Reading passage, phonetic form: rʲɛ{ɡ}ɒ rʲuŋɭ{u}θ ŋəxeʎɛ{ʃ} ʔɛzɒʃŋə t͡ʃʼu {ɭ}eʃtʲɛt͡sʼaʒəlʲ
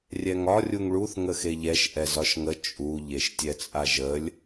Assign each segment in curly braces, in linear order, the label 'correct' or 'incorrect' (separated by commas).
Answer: incorrect, correct, correct, incorrect